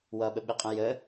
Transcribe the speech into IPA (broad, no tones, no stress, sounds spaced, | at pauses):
w ʌ ɓ ə ɓ ɨ qʼ ə̃ j ə